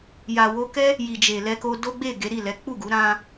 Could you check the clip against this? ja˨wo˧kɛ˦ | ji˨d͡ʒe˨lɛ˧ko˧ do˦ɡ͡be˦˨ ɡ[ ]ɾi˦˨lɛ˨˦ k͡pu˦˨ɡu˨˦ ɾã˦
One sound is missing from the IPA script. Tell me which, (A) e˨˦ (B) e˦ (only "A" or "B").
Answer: A